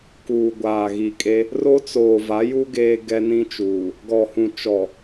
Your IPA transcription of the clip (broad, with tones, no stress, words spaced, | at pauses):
kuː˨ɡʷaː˨ ɣi˨kʼe˦ | ro˦t͡soː˨va˨˦ju˦ ɡeː˦ɡɛ˦nĩ˦t͡ʃuː˨ | ɡɔ˨hũ˨t͡ʃɔ˨